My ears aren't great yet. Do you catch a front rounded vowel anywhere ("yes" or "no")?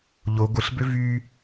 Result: yes